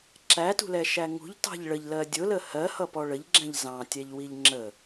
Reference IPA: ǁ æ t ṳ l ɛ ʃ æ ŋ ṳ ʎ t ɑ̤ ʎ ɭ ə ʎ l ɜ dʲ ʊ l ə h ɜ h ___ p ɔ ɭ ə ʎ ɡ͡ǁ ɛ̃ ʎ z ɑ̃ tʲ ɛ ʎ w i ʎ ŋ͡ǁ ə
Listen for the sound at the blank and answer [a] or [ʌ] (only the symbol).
ʌ